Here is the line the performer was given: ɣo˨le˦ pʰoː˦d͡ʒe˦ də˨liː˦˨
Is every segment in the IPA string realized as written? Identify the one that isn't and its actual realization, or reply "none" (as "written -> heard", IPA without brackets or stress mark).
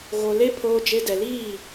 ə˨ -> ɛ˨